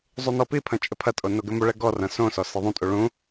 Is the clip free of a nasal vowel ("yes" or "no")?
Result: no